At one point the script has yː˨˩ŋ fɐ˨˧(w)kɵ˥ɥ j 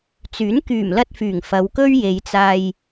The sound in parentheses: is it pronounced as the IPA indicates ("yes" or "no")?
yes